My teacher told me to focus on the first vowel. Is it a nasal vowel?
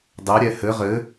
no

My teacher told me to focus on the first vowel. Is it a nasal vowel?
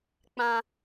yes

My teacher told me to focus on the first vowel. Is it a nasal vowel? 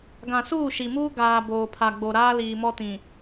yes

